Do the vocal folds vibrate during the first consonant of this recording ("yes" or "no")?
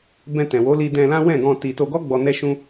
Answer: yes